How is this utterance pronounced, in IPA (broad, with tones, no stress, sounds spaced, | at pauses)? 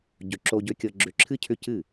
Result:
ɟ ʏ˨ ǁ o˧ ɟ ʏ˧ kʲ ɤ˧ ɡ͡ǁ ʏ˧ ǁʰ ɨ˦ cʰ ʏ˦ c ɨ˦˨